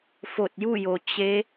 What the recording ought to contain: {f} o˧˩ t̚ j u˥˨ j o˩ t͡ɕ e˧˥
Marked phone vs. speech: correct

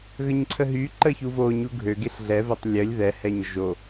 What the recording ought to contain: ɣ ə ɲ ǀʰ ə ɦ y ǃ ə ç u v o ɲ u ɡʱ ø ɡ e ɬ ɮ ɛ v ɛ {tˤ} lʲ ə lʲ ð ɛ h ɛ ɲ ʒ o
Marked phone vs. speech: correct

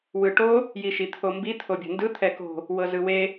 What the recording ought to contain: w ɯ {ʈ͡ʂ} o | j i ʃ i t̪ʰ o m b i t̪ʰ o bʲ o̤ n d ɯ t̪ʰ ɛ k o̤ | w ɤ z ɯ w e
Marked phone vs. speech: incorrect: ʈ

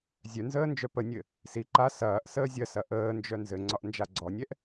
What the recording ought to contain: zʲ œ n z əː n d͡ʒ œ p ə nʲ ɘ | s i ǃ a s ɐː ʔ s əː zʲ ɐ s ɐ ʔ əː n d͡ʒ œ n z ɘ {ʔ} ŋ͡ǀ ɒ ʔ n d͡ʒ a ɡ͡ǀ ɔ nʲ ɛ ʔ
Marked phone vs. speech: incorrect: none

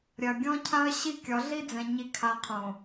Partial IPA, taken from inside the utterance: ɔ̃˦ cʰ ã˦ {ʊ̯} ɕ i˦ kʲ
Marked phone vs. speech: incorrect: ə̯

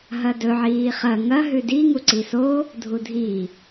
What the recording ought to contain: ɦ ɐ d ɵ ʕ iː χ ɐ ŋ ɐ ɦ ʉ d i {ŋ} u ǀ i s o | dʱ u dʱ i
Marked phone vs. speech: correct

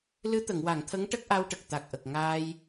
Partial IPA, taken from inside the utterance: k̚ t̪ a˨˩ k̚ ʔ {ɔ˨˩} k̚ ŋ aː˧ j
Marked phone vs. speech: incorrect: ə˨˩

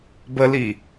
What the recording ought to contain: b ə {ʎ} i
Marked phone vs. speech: incorrect: l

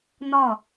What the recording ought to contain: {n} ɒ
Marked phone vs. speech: correct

